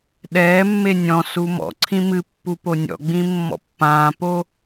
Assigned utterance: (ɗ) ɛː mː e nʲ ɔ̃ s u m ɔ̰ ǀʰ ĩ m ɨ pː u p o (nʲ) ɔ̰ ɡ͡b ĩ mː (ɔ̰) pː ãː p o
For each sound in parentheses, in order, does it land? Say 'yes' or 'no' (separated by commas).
yes, yes, yes